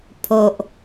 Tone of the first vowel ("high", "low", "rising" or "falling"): low